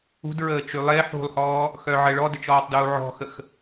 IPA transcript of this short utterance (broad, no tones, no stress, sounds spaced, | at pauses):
ṳ d ɹ əː t͡ʃ y lˠ e ħ ṳ lˠ h ɔː | x œ ʕ ə ɭ ɔ d ə t͡ʃ ɔː tˤ d uː ʕ ɔ̤ x ə x